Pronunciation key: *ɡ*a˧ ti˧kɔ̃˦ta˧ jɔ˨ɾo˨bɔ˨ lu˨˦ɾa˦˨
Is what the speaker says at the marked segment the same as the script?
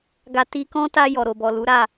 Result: yes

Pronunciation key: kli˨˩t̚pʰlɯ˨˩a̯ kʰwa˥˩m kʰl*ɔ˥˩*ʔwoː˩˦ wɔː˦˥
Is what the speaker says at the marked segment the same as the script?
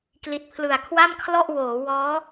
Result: yes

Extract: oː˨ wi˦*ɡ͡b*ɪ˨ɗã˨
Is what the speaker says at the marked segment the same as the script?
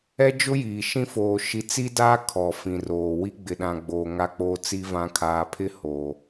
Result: yes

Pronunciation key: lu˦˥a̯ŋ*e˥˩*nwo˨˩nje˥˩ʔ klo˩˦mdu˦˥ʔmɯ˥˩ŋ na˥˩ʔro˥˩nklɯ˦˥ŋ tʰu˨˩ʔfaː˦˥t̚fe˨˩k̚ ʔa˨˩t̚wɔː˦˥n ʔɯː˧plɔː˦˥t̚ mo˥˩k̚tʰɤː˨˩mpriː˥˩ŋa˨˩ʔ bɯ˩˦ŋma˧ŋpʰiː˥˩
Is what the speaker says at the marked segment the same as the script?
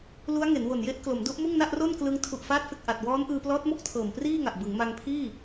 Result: no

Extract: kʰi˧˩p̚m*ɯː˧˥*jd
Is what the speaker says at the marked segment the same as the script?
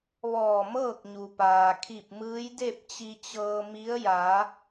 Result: yes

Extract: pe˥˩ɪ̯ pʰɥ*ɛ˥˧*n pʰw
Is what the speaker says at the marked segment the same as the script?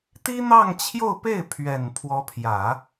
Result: no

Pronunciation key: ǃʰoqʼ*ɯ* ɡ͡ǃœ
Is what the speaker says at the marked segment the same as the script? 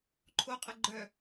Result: no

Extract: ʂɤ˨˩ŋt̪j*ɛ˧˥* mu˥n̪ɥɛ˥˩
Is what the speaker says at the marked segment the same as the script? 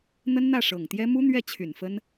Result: no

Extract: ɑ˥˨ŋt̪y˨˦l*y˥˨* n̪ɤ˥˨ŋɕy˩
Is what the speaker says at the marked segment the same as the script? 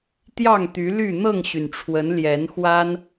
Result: yes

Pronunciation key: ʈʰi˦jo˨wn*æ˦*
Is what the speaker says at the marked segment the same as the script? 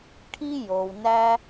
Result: yes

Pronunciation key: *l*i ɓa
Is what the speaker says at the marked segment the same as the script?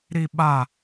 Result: no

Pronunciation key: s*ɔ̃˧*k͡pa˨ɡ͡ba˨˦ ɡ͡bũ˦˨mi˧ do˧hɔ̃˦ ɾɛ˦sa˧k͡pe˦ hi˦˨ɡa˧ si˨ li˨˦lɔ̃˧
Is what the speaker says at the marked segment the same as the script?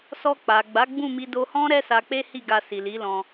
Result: no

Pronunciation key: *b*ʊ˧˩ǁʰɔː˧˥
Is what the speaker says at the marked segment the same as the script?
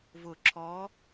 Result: no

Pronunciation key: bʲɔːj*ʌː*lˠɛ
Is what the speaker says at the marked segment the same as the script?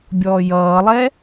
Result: yes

